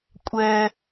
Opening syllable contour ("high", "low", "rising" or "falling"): high